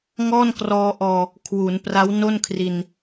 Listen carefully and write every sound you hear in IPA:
ŋ ɔː˥˩ n k r ɔː˧ ʔ ɔː˧ | kʰ w u˩˦ n p r a˦˥ w n o˥˩ n kʰ r i˧ n

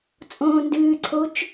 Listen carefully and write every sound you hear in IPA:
t͡sʼ õː n d ɨː ǀʰ o t͡ʃ

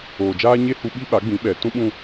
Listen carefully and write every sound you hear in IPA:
oː˨ d͡ʒ aː˦ ɲ e˦ h u˧ ɓ i˦ ɓ a˨˦ ɡ͡b ĩ˨˦ ɓ ɛ˨ t ũ˦ ɓ ũ˧

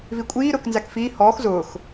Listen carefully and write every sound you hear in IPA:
v i kʷʼ iː ɾ ʊː k n z æ k f iː h ɔː x z ʊː x

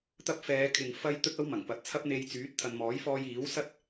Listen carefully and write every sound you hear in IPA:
t̪ ɐ˧ p̚ f ɛː˨˧ kʰ ɪ˨ ŋ f ɐ˥ j t̪ ɵ˥ t̚ ɐ˥ w m ɐ˨˩ ŋ p ɐ˨ t̚ t͡sʰ ɐ˥ p̚ n̪ e˧ j t͡s yː˨˥ t̚ t̪ʰ ɐ˨ n m ɔː˨˥ j f ɔː˧ j iː˨˥ w s ɐ˥ t̚

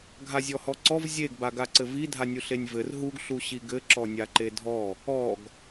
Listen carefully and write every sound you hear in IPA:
ɡʱ a zʲ ɔ h ɔ ǀ ɔ v zʲ e ɡ b a ɡ a ǀ ɘ v i dʱ a nʲ u ɬ e nʲ v ɘ r ɦ u ɡ ɬ u ɕ i ɡ ɘ ǁ ɔ nʲ a ǃ e dʱ ɔ | ɔ ɡ

